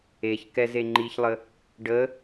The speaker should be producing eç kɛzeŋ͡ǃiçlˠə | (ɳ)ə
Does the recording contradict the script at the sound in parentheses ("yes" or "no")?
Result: yes